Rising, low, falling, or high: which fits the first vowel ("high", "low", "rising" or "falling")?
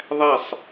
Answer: falling